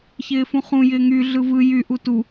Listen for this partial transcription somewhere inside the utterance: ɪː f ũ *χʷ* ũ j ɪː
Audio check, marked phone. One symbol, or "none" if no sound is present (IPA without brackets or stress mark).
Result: χ